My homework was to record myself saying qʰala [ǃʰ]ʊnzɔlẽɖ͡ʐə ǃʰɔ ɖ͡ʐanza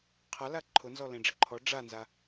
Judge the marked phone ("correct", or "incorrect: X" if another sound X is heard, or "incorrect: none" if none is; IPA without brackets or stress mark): correct